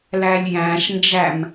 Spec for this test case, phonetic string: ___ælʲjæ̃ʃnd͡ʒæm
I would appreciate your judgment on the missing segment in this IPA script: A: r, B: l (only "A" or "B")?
B